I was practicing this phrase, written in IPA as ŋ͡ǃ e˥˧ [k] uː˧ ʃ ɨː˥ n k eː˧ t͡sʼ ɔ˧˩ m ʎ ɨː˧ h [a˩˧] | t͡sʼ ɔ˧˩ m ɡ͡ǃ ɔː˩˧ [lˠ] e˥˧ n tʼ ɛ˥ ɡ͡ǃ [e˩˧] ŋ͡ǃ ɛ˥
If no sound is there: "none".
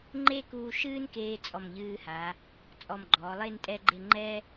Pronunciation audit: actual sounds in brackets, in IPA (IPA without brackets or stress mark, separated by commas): k, a˩˧, lˠ, e˥˧